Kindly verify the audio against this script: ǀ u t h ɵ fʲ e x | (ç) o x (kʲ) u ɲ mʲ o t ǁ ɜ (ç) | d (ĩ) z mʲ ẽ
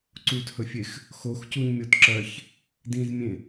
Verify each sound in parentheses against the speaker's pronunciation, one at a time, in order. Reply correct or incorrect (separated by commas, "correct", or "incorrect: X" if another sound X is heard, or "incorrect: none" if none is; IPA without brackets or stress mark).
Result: incorrect: x, incorrect: c, correct, correct